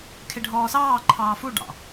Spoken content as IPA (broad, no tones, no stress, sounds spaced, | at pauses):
kʰ e ɖʱ ɔː s ɑː ǃʰ ɑː f u ɖ ɑ̰